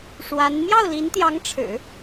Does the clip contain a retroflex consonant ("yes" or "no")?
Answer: yes